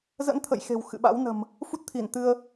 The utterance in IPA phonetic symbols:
z ə̰˧˥ n t̪ʰ ə̰˧˨ j x e̤˨˩ w x ɨ̰˧˨ ɓ a̰˧˥ w n ə̤˨˩ m | f u˦˥ t̚ t̪ʰ i˧˩ n t̪ ɨ˧ ə̯

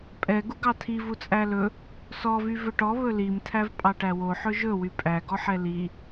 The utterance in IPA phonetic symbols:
pʼ ɛ ɡ u ɡ ɑ tʰ i v u t͡sʼ æ l ɵ | s ɔ v y v ɵ ʈ ɔ β ɵ l i m tʰ æ v pʼ ɑ ʈ æ w o ħ ɵ ʒ ɵ w y pʼ æ ɡ ɔ ħ ɛ l i

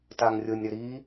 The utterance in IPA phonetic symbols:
t a ŋ rʲ ʊ nʲ ɾ ʏ ɾ i

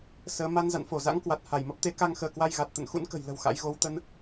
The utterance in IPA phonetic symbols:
s əː˨˦ m a˧ n z a̰˧˨ n f o˧˩ z a̰˧˥ ŋ k w a˨˩ t̚ h a˧˩ j m ə˦˥ p̚ t̪ e˧ k a˧ ŋ x əː˧˩ k w a˧ j ɣ a˨˩ t̚ t̪ ə̰˧˨ n x ṵ˧˥ n k ə̤˨˩ j l ə̤˨˩ w x a̰˧˥ j ɣ o˨˦ w t̪ ə˧ n

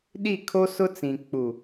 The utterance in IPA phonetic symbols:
ɗ i˦˨ kʰ o˦ s ʊ˦ t͡s ĩ˨ k͡p u˨

